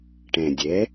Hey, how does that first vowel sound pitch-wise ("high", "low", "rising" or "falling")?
low